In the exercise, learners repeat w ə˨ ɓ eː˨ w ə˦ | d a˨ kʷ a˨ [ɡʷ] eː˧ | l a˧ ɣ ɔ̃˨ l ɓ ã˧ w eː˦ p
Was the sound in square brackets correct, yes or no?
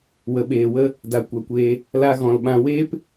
no